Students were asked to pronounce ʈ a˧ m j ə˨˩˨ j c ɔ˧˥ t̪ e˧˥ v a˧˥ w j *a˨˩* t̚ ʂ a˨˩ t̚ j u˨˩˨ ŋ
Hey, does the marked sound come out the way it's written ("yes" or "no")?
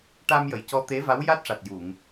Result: no